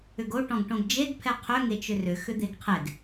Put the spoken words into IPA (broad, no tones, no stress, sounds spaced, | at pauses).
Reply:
ʏ ɡ o ʈ ɔ̃ ɡ ʈ õ ɡ d͡ʒ e ɡ pʰ ɛ qʰ ʏ ŋ e t͡ʃ ʏ r ʏ x ʏ d̪ e ɡ qʰ e ɡ